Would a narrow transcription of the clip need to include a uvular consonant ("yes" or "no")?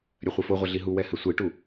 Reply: yes